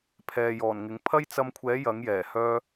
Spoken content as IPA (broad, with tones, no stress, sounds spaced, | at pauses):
pʰ ɛː˨ j ɔː˨˩ n ŋ ɪ˨˥ ŋ pʰ ɐ˥ j t͡s ɐ˧ m kʷʰ ɛː˨˥ j ɐ˨˥ ŋ j ɛː˨˩ h œː˥